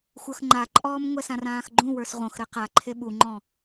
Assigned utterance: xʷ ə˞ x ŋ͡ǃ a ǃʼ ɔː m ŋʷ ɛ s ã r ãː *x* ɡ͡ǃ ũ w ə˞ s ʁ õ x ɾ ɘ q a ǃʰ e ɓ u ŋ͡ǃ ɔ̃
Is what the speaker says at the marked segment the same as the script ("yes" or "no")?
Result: yes